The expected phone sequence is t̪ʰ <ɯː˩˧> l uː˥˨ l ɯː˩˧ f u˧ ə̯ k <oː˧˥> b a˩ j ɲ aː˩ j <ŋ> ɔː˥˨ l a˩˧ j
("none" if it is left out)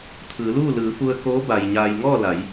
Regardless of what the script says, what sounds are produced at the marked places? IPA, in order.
ɯː˩˧, oː˧˥, ŋ

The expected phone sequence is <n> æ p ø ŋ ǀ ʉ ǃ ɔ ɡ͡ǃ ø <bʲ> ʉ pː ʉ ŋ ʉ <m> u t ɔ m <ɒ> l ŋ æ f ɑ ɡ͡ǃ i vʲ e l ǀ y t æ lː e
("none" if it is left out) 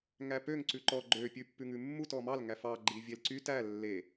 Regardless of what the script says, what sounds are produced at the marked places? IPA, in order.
ŋ, pʲ, mː, ɑ

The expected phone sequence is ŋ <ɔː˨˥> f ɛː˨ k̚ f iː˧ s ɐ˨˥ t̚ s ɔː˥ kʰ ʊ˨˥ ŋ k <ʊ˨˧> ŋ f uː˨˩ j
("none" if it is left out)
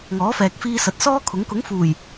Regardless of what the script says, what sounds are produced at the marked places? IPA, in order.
ɔː˨˥, ʊ˨˥

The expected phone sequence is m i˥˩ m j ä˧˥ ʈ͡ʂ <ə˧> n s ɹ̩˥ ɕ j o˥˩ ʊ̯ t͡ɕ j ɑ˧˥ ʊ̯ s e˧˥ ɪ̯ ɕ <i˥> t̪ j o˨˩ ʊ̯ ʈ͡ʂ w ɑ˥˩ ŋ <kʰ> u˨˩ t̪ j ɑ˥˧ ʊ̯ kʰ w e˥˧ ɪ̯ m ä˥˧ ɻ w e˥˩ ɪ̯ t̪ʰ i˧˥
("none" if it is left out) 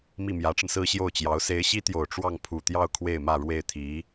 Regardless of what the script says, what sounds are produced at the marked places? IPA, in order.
ə˧, i˥, pʰ

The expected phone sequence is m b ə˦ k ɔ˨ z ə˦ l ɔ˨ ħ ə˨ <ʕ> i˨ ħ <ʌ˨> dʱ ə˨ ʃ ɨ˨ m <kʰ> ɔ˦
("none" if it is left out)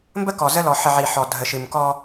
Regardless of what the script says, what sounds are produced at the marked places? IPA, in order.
ʕ, ɔ˨, k

